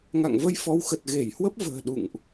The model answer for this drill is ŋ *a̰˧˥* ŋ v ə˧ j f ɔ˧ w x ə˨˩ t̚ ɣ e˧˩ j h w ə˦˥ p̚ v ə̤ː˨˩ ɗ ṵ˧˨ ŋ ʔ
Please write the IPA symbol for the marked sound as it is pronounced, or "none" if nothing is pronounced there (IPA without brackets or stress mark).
a̰˧˨